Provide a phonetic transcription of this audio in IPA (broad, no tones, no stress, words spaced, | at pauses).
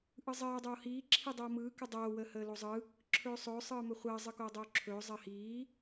ʔɯzˤɜː dˤoːhiː ǁʰidˤoːmɯː kɯdˤoː wəːhəːlozˤɯ | ǁʰɵːsˤɵː sˤɯːmɵχʷəː zˤɯkoːdˤoːǁʰɵː zˤɜhiː